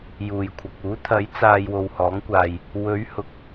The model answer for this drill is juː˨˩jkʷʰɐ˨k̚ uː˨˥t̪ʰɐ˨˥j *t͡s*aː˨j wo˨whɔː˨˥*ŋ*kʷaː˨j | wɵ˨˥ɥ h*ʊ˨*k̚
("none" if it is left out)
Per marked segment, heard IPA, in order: t͡s, ŋ, ʊ˨˥

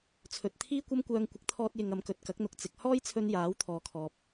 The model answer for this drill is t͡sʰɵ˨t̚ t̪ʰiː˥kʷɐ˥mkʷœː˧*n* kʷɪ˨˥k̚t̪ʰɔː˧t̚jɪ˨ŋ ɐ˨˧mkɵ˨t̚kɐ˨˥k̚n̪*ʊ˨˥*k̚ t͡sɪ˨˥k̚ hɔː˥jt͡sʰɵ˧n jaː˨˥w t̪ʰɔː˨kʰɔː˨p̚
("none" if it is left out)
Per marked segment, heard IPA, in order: ŋ, ʊ˨˥

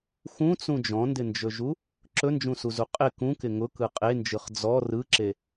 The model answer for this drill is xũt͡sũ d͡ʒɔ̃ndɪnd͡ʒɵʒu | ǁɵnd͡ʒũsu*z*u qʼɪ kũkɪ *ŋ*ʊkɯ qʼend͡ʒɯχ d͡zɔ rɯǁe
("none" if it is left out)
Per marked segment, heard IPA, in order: z, ŋ

